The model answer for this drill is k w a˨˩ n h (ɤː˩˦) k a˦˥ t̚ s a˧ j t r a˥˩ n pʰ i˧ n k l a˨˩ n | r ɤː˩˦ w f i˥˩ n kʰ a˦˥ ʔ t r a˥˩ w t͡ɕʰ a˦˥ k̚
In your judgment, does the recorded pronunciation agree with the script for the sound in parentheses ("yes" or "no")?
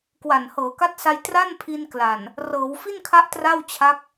yes